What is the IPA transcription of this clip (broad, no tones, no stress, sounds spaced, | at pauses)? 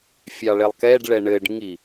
fʲ ɑ ɭ e lˠ k ɛ ɖ ɭ ɛ ɳ ɘ ɖ ŋ i